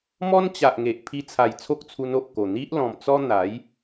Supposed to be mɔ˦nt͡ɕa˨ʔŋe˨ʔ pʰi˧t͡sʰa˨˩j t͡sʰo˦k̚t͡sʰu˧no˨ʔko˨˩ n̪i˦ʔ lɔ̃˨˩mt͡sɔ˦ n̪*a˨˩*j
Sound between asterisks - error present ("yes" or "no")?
yes